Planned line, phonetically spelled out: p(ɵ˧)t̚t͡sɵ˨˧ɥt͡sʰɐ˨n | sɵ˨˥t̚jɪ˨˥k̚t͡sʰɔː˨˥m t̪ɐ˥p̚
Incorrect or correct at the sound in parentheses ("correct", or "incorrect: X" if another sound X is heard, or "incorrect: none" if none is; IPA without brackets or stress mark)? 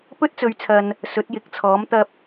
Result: incorrect: ɵ˥